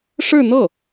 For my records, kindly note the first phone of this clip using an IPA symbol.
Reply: ʂ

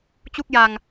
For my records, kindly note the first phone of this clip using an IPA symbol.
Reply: t͡ɕ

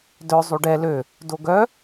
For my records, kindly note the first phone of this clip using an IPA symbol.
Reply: d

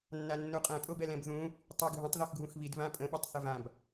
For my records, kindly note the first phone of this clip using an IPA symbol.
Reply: nː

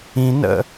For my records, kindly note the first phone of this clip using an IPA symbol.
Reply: ĩ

